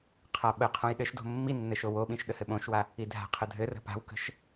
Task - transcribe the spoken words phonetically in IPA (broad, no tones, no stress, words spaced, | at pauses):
qʰaɓəqʰõj ɗɘʃdo̤ mːi nːɘʃowoɓĩʃ ɗəhɘɓõʃwa | idʱa̤qʰə dʱɘrə̤ pa̤wkə̤ʃ